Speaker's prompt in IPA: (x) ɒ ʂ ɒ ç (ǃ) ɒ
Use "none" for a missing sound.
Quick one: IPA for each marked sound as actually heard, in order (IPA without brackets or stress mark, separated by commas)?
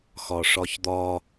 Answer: x, d̪